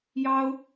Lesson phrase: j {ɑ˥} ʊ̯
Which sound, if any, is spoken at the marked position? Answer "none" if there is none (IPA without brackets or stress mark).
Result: ɑ˥